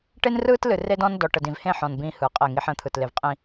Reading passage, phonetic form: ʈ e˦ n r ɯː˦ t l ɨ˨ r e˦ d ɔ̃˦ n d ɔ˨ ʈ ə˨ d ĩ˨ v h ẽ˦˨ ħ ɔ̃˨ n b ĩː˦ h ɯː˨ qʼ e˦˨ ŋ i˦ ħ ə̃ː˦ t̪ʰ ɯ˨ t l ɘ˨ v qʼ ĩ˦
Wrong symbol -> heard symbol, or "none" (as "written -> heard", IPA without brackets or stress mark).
ɘ˨ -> e˨